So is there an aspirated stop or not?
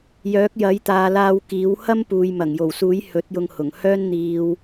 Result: no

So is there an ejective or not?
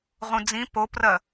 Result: no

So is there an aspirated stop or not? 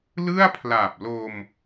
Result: yes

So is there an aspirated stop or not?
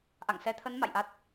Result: yes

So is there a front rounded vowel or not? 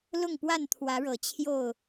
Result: no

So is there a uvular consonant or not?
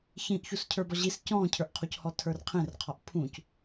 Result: yes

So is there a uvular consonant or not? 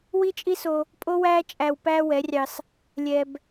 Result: no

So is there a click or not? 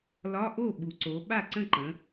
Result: yes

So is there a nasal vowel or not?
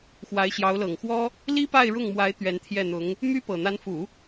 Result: no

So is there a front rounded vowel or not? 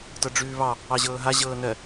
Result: no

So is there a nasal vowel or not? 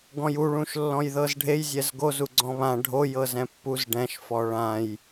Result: yes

